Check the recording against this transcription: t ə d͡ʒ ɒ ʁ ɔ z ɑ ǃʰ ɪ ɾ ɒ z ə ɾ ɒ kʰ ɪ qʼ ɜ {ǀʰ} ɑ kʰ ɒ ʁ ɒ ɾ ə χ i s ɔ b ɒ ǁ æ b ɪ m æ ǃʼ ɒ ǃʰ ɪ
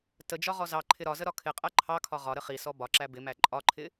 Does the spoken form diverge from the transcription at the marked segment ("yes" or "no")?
yes